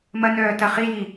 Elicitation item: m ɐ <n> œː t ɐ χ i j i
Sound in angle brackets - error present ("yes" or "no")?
no